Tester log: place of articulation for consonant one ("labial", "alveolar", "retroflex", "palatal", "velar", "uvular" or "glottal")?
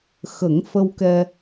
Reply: velar